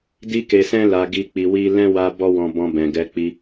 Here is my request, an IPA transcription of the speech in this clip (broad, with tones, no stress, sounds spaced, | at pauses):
d i˦ k e˧ s ɛ̃˦ l a˧ ɡ i˧ k͡p i˧ w i˦ l ɛ̃˦ w a˧ b ɔ˦ w ɔ̃˧ b ɔ̃˧ b ɛ̃˨ ɡ ɛ˧ k͡p i˧